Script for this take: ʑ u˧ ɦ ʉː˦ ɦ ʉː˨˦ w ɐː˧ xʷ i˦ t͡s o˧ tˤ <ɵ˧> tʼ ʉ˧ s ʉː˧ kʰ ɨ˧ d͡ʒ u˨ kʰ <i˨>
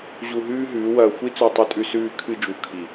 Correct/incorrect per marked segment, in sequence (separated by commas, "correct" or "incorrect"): correct, correct